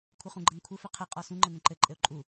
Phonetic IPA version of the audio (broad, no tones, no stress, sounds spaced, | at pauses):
kʷʰ ɘ χ ũ ɡ͡ǃ ə n kʷʰ ɘ f ɘ qʰ ɘ qʼ ɔ s ũ ŋ͡ǃ ə n ə̃ ǃ ɘ ǃʼ ɘ ʊ̯ ǃʼ u